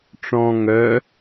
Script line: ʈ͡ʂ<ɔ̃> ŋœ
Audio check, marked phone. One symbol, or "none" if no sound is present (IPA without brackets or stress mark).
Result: ɔ̃